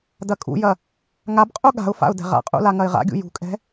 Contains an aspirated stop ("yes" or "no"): no